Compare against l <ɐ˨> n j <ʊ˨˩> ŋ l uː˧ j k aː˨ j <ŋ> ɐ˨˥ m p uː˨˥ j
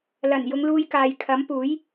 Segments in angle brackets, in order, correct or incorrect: incorrect, incorrect, incorrect

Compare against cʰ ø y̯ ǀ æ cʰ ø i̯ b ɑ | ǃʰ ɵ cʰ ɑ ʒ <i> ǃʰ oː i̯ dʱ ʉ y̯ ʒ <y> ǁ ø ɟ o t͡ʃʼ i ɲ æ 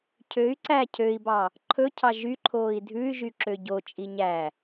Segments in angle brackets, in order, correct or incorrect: incorrect, correct

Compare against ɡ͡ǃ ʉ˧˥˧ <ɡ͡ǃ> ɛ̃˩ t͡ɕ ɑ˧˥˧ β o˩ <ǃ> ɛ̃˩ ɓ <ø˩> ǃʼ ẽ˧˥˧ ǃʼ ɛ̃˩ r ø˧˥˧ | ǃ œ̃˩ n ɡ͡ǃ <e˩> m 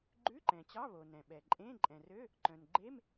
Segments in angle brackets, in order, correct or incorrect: incorrect, incorrect, incorrect, incorrect

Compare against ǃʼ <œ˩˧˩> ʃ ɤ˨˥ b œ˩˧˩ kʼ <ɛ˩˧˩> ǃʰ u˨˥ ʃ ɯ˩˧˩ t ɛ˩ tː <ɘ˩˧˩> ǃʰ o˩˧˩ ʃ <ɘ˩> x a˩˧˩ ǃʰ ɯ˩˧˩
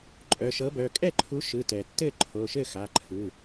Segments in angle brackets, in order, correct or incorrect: correct, incorrect, incorrect, incorrect

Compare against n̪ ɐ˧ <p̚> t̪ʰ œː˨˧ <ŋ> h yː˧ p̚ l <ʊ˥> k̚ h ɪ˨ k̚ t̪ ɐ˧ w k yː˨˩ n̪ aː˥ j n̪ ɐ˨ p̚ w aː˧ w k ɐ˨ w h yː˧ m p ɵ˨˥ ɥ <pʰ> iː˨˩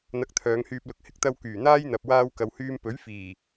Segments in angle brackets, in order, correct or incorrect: incorrect, correct, incorrect, incorrect

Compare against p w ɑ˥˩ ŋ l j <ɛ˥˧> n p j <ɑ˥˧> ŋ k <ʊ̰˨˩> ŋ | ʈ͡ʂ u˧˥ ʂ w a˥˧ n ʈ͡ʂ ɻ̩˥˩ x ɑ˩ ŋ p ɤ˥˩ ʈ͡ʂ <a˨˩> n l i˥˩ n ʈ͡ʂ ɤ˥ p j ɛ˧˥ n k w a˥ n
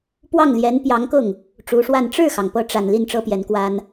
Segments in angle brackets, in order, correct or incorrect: incorrect, incorrect, incorrect, correct

